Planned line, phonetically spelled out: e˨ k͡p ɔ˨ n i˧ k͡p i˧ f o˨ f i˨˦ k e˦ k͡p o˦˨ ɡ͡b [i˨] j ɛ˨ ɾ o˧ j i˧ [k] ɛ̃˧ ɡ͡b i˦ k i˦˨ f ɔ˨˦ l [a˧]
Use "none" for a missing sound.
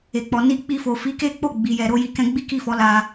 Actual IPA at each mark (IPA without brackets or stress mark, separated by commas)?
i˨, k, a˧